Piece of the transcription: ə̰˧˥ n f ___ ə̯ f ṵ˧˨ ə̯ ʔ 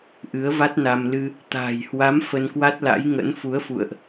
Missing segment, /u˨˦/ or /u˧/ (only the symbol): u˨˦